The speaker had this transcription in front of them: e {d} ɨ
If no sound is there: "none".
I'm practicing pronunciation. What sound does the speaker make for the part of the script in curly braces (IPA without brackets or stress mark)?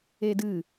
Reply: d